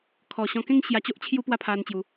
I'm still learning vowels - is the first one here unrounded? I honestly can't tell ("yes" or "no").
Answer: no